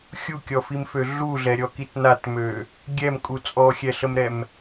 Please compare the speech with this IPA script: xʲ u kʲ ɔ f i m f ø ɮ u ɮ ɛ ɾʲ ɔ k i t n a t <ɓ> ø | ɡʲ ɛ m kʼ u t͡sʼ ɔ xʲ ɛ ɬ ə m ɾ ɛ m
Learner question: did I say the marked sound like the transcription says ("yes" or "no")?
no